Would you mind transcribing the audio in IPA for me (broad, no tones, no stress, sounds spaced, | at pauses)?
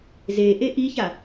z e ʔ e ʔ i ç a